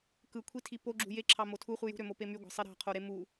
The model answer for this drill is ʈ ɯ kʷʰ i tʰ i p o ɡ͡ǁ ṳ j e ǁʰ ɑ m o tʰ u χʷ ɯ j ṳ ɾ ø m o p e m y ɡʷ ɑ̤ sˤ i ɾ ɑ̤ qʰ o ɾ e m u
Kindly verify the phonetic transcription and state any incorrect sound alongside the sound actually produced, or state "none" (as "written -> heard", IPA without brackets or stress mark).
ʈ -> k